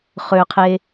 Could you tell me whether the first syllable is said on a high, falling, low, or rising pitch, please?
low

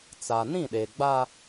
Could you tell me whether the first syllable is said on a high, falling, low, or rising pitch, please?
low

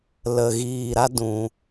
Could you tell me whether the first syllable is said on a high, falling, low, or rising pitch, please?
low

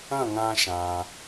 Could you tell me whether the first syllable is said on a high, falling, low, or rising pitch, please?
falling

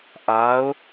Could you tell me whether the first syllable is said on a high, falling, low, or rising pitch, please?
rising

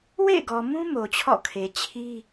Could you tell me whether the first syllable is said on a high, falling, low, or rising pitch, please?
falling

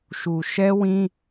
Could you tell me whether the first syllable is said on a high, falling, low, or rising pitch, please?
low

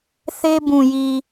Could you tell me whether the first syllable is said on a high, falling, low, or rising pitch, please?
high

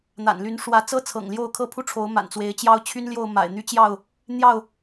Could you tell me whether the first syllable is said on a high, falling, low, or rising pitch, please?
low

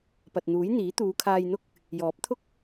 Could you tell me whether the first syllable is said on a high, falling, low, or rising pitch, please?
low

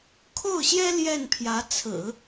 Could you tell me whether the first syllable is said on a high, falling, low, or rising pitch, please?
falling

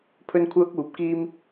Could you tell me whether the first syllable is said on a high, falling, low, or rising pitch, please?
high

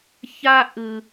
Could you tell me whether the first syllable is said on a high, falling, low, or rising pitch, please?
high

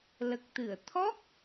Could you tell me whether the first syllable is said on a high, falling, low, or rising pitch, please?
low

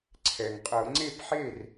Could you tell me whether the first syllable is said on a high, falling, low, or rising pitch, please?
low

